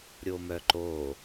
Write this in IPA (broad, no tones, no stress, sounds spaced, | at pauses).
ɾʲ o m œ ǃ o